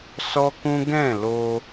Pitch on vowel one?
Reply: high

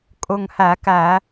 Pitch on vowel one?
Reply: low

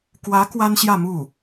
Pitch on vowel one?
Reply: rising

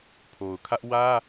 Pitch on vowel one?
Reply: low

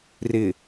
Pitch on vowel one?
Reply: low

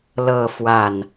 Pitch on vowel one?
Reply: falling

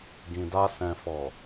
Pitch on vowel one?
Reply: low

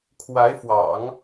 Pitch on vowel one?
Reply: rising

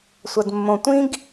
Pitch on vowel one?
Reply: low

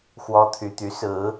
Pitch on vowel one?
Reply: high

